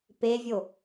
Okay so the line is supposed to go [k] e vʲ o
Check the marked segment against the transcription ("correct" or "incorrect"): incorrect